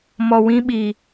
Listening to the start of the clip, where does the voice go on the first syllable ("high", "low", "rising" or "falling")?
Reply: low